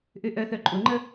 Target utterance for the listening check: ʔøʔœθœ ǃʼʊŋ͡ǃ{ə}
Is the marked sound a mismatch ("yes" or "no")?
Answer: no